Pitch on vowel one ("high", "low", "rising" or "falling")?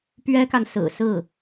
high